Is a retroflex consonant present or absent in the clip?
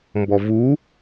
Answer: absent